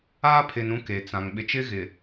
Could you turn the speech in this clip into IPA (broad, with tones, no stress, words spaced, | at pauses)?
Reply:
aː˦pʰɪ˨n ũ˦ke˨t͡sã˨ŋ ɓɪ˨t͡ʃɪ˦ɣɪ˨